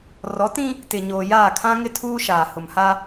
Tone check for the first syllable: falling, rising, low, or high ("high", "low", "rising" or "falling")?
rising